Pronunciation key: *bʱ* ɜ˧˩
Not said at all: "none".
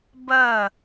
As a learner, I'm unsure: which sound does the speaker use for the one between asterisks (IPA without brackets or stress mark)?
b